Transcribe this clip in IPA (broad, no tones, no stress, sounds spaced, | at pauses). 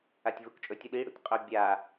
a tʲ v u k t͡ʃʼ ɵ tʲ u ɗ i ɽ ṵ tʲ qʼ ɵ bʲ a